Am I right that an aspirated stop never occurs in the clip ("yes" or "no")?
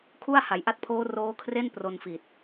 no